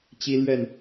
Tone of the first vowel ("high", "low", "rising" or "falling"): high